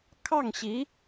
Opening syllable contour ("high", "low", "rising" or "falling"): falling